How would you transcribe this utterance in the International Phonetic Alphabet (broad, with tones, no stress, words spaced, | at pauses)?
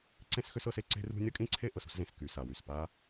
ǀẽ˥sxʏ˥s ɤ˥se˥ ǀe̤˥rṳ˥ nʲɤ˥kʼĩ˥ǀʰe˥ ʔɤ˩sṳ˥szẽ˩s ky˩ sa˩wy˩s pa˥